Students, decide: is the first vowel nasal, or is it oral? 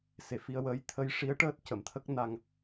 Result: oral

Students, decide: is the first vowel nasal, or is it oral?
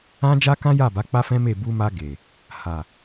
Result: nasal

